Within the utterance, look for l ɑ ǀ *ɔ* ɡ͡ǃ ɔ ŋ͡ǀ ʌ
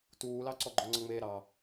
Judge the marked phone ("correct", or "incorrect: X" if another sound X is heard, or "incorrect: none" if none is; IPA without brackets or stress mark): correct